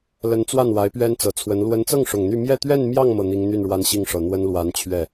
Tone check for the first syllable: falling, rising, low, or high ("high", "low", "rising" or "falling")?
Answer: rising